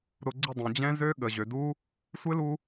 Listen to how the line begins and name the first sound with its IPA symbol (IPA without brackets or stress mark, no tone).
ɾ